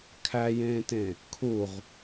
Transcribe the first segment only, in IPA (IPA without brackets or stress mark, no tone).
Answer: kʰ